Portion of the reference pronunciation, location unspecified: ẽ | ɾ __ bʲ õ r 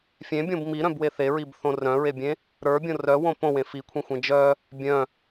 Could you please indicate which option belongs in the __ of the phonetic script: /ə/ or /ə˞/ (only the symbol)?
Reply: ə˞